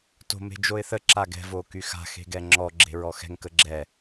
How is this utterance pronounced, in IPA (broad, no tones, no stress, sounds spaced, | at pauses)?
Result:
t o̤ m e̤ d͡ʒ o ɪ̯ θ ə ǁ a ɡ ɛ̤ v o k y x a̤ x e̤ ɡ ɛ ŋ͡ǁ ɔ ɡ͡ǁ e̤ ɹ ɔ x ɛ̤ ŋ k ə ɡ͡ǁ ɛ